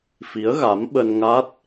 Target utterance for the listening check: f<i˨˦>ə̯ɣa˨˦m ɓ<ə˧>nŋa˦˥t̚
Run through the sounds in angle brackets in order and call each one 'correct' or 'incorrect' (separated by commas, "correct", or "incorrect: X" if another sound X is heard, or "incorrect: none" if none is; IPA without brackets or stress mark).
correct, correct